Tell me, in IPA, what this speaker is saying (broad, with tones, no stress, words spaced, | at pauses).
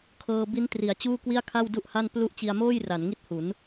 kʰɤː˧bi˦˥n tri˩˦a̯t͡ɕuː˥˩kwi˥˩a̯kʰa˥˩w du˥˩ʔha˥˩n plu˥˩ʔ t͡ɕi˧a̯moː˥˩jra˩˦nŋi˦˥t̚ hu˩˦n